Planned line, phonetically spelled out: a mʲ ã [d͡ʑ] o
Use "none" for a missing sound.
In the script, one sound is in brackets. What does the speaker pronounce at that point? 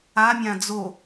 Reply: d͡z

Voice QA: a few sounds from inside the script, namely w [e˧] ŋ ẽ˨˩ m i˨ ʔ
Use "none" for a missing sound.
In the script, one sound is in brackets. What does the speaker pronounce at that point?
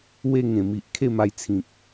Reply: e˧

